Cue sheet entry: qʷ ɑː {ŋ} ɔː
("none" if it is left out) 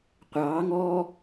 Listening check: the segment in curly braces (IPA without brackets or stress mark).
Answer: ŋ